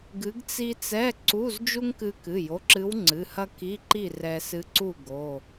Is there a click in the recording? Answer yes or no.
yes